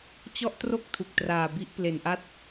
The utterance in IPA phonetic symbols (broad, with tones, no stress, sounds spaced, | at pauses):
t͡ɕ ɔ˥˩ ʔ t r o˥˩ k̚ tʰ u˨˩ k̚ t r aː˨˩ b i˦˥ ʔ p l e˨˩ n ʔ a˥˩ t̚